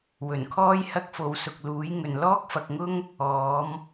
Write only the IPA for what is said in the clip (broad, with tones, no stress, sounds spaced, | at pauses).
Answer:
w ɵ˨˩ n kʰ ɔː˥ j h ɐ˥ k̚ f o˨˧ w s ʊ˨ k̚ l uː˨˥ j ŋ ɵ˨ n l ɔː˥ k̚ f ɐ˨ k̚ ŋ ʊ˥ ŋ | ɔː˨˥ m